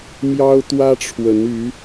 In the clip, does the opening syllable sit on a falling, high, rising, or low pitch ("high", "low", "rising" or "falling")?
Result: high